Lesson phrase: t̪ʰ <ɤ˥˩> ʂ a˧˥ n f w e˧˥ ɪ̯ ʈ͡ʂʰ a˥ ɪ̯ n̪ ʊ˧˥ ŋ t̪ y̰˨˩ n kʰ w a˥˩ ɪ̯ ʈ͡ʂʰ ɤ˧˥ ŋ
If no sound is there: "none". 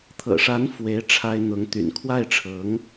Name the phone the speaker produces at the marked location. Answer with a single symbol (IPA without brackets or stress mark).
ɤ̰˨˩